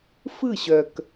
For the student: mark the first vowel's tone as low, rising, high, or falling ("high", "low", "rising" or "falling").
falling